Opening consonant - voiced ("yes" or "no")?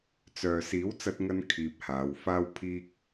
no